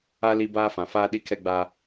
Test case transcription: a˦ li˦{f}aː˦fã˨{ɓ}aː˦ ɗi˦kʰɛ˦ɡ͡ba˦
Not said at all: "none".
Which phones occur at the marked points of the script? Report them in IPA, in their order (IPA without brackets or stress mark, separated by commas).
b, f